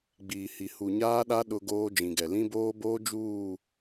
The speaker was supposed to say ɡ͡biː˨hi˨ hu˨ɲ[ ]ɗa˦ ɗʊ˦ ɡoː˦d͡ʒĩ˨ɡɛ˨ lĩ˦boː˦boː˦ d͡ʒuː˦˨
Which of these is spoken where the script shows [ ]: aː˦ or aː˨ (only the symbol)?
aː˦